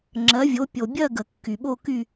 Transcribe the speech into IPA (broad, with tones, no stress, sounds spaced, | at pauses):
ŋ͡ǁ ɜ˩˥ vʲ o˩˥ pʲ o˩ bʲ ɜ˥˨ ɡ ə˩ kː y˩ ɓ o˥˨ k y˥˨